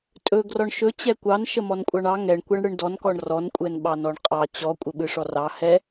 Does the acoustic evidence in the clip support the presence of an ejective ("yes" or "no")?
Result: yes